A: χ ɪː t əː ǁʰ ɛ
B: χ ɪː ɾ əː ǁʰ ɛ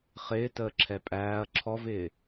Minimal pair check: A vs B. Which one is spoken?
A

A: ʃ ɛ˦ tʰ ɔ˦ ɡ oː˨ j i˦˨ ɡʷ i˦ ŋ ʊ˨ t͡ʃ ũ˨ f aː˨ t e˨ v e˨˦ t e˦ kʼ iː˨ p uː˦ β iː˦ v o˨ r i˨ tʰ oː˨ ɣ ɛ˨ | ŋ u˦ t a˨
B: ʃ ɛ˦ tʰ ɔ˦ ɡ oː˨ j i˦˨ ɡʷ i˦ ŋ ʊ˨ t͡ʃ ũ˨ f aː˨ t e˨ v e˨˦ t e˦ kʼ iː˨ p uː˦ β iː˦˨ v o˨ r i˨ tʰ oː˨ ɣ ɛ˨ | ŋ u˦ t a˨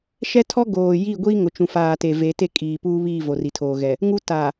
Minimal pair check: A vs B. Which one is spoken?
B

